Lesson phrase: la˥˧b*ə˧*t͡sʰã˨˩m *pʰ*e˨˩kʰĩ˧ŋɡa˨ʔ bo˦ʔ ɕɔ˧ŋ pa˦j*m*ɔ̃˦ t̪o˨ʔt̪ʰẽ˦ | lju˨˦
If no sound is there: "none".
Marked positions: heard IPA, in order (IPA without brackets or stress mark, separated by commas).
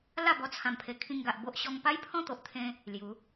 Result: ɔ˧, pʰ, pʰ